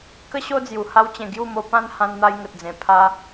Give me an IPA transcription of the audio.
k ə˦ ɕ o˦ d͡z j u˨˩ h a˧ w t͡ɕ ẽ˨˩ ɡ j u˥˧ m o˧ p ã˦ n h ã˧ n n̪ a˧ j ŋ ə˨ t̚ d͡z ẽ˨˩ pʰ a˧

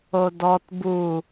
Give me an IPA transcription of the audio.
o d ɔ t b u

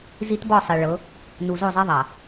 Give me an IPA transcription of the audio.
z i˦ t b ɔ˦˨ sˤ e˨ ɭ ɤ˨˦ | n u˨ z o˦˨ zˤ ɛ˦ ðˤ a˨

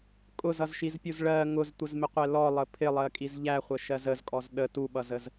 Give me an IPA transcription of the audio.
kʼ ʊ z ʌ z ʃ i z pʲ u z ɭ ɜ ŋ ʊ z tʷ ə z m ɪ qʷ ɛ l ɔ lˠ ə pʰ ɪ lˠ ɜ kʼ i z ʎ æ χʷ ə ʃ ɜ z ə z kʼ ɔ z ɗ ə t u ɓ ʌ z ə z

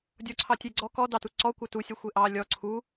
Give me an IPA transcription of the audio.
dʲ ɔ ǀʰ ɑ tʲ e ɡ͡ǀ ɔ k ɔ d ɑ t u ǀ ɔ kʷ a t u sʲ a xʷ e ʔ ɑ lʲ ɔ ǀʰ u

